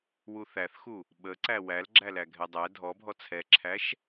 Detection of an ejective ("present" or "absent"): absent